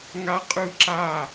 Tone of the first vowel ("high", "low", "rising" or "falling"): high